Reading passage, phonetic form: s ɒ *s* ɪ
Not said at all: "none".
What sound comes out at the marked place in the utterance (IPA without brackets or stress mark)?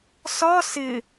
s